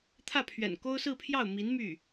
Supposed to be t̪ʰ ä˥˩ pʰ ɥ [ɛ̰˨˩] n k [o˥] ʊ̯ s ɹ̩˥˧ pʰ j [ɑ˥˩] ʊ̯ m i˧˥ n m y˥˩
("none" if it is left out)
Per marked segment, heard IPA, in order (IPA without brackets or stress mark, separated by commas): ɛ̰˨˩, o˥, ɑ˥˩